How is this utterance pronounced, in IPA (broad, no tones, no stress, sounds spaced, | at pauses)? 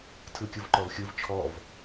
tʰ ɯ kʲ ɯ v ǃ ɔ v xʲ ɯ v t͡ʃʰ ɔ v